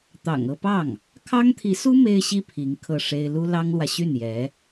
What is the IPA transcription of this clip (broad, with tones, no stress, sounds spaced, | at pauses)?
t̪ ɑ̰˨˩ ŋ ɤ˥˧ p ɑ˥˩ ŋ | kʰ ɑ˥ ŋ t̪ʰ i˧˥ s u˥ m e˥ ɪ̯ ɕ i˥ pʰ i˧˥ ŋ kʰ ɤ˥˩ ʂ e˥ ɪ̯ l u˥ l ɑ˥ ŋ l w ä˨ ɕ y˥˩ n j ɛ˧˥